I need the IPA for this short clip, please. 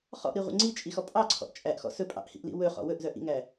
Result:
χ ɔ̰ ʔ ɾ i ʁʷ ḭ ŋ͡ǀ i t͡ʃʼ i x ɔ pʼ ɑ ǀʰ ɔ̰ ʔ t͡ʃʼ æ ʔ x ɔ̰ s ɵ pʼ ɑ̰ ʔ h ḭ ʔ l ḭ w ɵ χ ɔ̰ w ɵ ʔ z œ ʔ ḭ ŋ æ

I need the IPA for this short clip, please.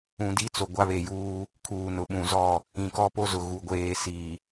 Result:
ũ˦ d i˦ t͡s o˨ ɡʷ a˦ β e˨ j uː˦ | kʰ uː˨ n ʊ˨ ɓ ũ˨ z ɔ˦˨ | ĩ˨ k ɔ˦ p o˦ z ʊ˨ ɣ u˨ ɡʷ eː˨ s iː˨

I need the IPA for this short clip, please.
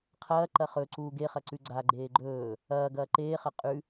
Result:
qʰ ɐː ǃ ɐ χ ɵ ǀ uː ɡ e χ ɐ ǀ ʉ ɡ͡ǀ a ɡ͡ǃ eː ɡ͡ǃ ɵː | ɐː ɡ ɐː ǃ eː χ ɐ qʼ ʉ

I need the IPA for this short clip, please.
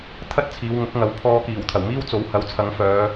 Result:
t̪ʰ ɐ˥ t̚ t͡sʰ iː˨˧ w ŋ ʊ˨˥ k̚ ŋ ɐ˨˧ w pʰ ɔː˧ k iː˨˩ w t̪ʰ ɐ˨˩ w m iː˥ w t͡s o˨˥ w h ɐ˨˥ w t͡sʰ ɐ˨˧ ŋ f œː˨˧

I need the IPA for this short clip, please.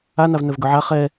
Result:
a n a v n œ v ɡ œ ʕ a χ ɛ

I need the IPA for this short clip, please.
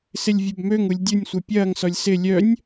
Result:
s ɪ lʲ vʲ ɐ b m ø ŋ u lʲ dʲ ʊ nʲ sʷ œ pʲ ɐː ŋ s ɔ lʲ s ɪ lʲ œ nʲ

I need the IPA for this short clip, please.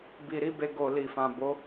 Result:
b i˨ ɾ i˨˦ b e˧ ɡ o˨ l i˨ f ã˨ b o˨˦

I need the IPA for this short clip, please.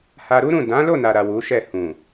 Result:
h a˧ ɾ u˦ ɾ ũ˦˨ d ã˨˦ l o˦˨ n a˨ ɾ a˨ w u˨˦ ʃ ɛ˦˨ h ũ˨

